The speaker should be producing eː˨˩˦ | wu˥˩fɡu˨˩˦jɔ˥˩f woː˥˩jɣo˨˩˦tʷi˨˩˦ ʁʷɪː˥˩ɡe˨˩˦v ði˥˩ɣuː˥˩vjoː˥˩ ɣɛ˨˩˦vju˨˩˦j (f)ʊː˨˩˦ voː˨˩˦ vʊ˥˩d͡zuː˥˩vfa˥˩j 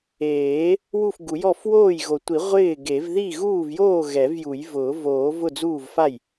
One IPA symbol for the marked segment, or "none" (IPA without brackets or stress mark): v